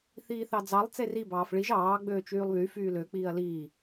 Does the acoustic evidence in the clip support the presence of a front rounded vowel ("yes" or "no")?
yes